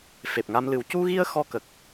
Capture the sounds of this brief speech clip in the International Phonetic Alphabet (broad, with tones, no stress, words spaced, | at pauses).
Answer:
fe˨˩p̚ŋa˧mlɨ˨˩˦w cu˧ɣi˧ə̯ xɔ˧kə˨˩k̚